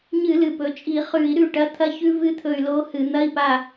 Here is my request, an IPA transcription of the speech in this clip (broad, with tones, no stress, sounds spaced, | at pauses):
ɲ ɨ˧˩˧ l ɨ˨˩ p ɵ˩˧ t͡ʃʼ i˧˩˧ χ ʉ˧˩˧ i̯ ɾ ʉ˦˨ ʈ ɐ˧˥˧ t̪ʰ ɐ˦˥ ç ʉ˦˥ v ɨ˦˥ t̪ʰ ɵ˦˨ y̯ l o˦˥ h ɨ˧˩˧ n̪ ɐ˧˥˧ i̯ p a˦˨